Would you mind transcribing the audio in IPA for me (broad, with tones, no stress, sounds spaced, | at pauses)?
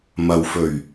m ɐ˨ w f ɵ˨˩ ɥ